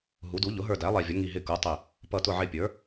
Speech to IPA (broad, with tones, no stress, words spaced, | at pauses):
ɦu˩˥du˩˥ ʎʊ˩˥ɦə˞˧˩dæ˩˥ lˠɛ˧˩vʲʌ˩˥ŋi˧˩ ɦɪ˧˩ku˩˥tˤɪ˧˩ | pʌ˧˩tʊ˧˩ʕɪ˧˩pʲə˞˩˥